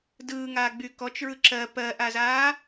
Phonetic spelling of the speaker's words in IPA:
dɯːŋaːɡ͡by kɔt͡ʃɹɯ ǁɜ pɜʔazaː

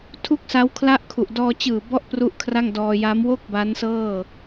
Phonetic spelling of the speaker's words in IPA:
tʰu˥˩k̚sa˦˥wkʰla˥˩ʔkʰu˨˩ʔ dɔː˧t͡ɕɯː˨˩bɔ˦˥ʔ pru˥˩ʔkʰra˥˩ŋdɔː˧ ja˦˥m wo˥˩k̚ ba˦˥nsɤː˥˩

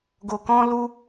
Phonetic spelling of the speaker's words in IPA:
ɡo˧kɔ̃˦lu˦

